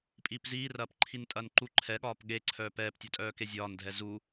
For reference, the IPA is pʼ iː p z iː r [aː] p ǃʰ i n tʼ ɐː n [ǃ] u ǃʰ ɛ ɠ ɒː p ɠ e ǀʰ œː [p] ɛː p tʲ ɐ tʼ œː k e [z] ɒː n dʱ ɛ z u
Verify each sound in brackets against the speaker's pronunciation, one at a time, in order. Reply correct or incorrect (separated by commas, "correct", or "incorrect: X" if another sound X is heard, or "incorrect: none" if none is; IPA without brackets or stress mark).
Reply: incorrect: ɐː, correct, correct, incorrect: zʲ